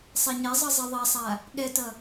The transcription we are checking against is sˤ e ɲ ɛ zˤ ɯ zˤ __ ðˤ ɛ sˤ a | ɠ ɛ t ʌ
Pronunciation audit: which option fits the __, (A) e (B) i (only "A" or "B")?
B